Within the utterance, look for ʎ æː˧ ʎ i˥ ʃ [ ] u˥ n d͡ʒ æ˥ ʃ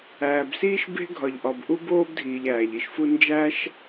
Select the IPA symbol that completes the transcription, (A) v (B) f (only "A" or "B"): B